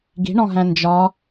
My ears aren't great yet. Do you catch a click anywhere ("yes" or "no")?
no